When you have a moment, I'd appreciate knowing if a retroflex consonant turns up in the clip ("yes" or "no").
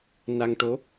yes